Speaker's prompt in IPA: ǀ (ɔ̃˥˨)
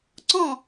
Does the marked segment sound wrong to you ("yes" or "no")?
no